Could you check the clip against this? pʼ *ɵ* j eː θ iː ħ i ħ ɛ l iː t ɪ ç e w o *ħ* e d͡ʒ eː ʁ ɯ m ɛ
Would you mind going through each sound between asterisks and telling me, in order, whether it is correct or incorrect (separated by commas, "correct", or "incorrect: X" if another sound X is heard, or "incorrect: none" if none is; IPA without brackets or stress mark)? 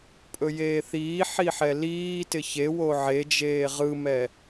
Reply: correct, incorrect: ʕ